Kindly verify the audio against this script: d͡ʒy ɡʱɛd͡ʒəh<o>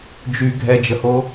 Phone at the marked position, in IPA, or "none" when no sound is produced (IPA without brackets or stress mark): o